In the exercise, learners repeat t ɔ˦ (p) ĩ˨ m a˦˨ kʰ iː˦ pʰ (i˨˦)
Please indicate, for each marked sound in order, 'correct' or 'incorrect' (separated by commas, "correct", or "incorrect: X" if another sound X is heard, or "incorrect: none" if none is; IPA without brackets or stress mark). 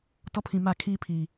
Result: incorrect: pʰ, incorrect: i˨